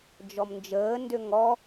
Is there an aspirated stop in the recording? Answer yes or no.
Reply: no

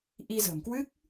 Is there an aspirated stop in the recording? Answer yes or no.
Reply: no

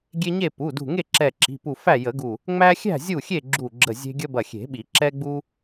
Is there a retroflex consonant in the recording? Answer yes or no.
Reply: no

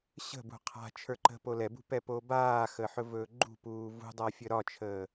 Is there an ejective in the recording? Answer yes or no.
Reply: no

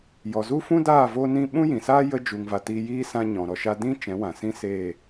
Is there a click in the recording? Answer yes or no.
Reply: no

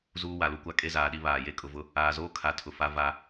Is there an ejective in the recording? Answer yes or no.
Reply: yes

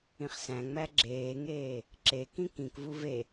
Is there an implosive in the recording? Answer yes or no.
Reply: no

